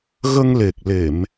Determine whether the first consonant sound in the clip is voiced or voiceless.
voiced